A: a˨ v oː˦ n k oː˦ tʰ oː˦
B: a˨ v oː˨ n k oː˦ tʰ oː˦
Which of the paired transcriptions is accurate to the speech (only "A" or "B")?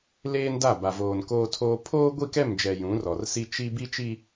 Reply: B